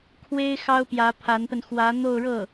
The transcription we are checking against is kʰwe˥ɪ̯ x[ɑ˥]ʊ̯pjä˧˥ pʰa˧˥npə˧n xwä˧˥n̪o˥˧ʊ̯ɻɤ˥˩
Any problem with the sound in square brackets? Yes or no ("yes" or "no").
no